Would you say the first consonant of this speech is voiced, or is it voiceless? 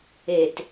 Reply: voiceless